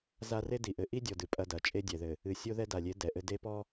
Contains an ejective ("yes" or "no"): yes